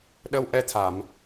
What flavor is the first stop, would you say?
implosive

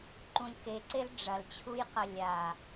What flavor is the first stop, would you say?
click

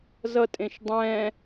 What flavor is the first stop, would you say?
ejective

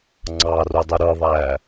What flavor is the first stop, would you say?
click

